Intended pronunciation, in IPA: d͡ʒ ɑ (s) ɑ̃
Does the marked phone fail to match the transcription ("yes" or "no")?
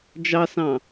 no